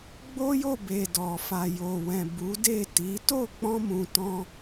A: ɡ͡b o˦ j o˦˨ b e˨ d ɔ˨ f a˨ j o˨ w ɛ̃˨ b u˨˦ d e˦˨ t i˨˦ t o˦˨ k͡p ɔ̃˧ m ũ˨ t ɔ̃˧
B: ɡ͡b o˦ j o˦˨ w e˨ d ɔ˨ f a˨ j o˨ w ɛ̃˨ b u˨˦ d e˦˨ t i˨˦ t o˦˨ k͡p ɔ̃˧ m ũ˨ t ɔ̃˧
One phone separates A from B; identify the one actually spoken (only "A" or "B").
A